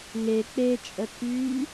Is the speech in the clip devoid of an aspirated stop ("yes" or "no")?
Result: no